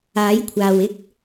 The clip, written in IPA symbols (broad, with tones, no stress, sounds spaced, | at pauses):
aː˨˥ j kʷʰ aː˨ w ɪ˥ k̚